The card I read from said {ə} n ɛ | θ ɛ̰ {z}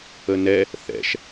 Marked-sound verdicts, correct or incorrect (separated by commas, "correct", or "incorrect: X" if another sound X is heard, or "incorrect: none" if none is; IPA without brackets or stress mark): correct, incorrect: ʃ